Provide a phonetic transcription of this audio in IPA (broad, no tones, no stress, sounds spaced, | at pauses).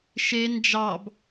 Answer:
ʃ e n d͡ʒ ɑ b